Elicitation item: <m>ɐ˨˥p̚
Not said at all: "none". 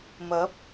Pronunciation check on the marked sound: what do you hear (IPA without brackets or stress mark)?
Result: m